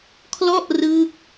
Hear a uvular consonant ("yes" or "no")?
no